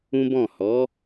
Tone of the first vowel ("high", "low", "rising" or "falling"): high